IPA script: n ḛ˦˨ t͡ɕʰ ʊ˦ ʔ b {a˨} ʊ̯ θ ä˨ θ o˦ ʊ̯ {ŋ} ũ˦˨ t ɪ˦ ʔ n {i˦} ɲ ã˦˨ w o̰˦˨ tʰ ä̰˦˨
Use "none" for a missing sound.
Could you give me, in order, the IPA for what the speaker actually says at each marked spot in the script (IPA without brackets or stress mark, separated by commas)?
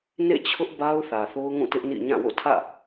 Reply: a˦, ŋ, ḭ˦˨